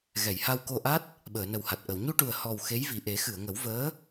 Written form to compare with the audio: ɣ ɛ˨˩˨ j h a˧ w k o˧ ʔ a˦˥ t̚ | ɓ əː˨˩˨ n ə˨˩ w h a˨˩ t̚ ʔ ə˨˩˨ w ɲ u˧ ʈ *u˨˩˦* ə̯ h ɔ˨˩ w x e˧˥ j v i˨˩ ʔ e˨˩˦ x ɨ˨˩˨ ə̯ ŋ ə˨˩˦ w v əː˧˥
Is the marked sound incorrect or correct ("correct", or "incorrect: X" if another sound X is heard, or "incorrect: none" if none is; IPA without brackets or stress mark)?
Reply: incorrect: u˨˩